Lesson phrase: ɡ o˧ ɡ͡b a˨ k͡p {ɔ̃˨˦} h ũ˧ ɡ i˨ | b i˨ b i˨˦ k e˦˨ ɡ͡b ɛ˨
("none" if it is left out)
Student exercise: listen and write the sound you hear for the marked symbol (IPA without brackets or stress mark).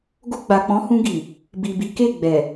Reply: ɔ̃˨˦